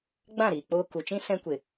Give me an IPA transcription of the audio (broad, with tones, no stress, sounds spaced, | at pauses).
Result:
ɡ͡b ã˦˨ ɾ iː˨ k͡p oː˧ k u˨ t͡ʃ ĩ˦ s ɛ̃˦ kʷ e˨